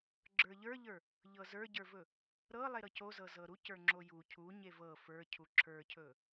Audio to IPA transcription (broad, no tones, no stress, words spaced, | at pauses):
ɡ͡ǁə˞ʎə˞ʎə˞ | ʎɤzə˞ɟə˞vɵ | ɾɤ lˠeɾɤcozɤ zɤɾuc ə˞ŋ͡ǁoju cʰu ɲevɤ fə˞cʰu ǁʰə˞cʰɵ